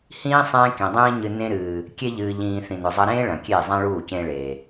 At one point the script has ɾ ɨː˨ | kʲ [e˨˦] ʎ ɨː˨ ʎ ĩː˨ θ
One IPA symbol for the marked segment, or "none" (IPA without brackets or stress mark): e˧